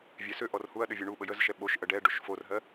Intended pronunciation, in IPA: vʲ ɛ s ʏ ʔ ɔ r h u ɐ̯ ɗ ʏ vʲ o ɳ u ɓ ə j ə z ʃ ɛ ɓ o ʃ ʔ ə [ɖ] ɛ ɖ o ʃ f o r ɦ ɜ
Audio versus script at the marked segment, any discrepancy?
no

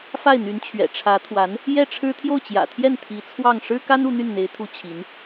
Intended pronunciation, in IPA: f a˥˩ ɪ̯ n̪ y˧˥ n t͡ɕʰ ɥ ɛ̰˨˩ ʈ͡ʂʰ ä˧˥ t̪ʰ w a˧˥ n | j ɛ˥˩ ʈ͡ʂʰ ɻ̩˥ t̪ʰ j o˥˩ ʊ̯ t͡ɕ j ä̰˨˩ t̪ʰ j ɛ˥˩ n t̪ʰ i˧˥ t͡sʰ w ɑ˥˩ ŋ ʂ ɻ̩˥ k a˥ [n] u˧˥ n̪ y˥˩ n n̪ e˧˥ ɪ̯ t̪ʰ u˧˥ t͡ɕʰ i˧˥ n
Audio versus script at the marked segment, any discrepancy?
no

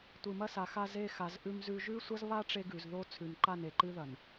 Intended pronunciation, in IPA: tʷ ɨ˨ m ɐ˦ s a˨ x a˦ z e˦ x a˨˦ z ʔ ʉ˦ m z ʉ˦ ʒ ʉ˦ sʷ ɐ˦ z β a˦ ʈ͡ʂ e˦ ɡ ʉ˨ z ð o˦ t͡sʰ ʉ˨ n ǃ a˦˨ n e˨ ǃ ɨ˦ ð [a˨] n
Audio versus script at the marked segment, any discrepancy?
yes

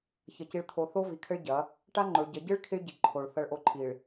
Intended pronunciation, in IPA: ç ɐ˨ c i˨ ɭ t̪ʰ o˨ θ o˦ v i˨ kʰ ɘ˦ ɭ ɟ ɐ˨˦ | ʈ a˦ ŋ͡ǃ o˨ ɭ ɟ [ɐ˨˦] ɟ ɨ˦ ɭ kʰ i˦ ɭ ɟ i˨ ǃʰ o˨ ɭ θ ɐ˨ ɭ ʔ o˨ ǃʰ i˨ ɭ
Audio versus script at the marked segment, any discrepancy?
no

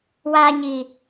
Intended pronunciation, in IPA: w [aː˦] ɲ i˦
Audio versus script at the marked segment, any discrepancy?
no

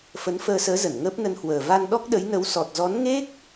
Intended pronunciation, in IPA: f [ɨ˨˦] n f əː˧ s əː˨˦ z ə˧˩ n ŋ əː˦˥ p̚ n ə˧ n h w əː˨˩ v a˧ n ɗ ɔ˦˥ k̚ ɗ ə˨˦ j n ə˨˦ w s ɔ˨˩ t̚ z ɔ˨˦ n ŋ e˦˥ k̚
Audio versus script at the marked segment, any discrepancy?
yes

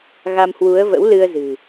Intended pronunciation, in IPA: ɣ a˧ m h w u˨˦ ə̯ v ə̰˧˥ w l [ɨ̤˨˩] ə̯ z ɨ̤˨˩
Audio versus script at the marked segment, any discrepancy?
yes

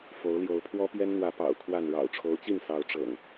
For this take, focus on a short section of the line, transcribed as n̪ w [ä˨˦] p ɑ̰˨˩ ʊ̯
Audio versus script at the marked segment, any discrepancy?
no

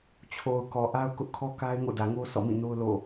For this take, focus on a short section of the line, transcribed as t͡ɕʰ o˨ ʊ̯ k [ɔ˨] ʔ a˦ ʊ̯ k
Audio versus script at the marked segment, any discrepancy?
no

